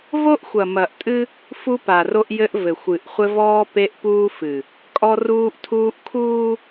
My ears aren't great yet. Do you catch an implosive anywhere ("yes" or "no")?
no